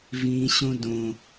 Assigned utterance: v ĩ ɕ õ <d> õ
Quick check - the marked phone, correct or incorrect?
correct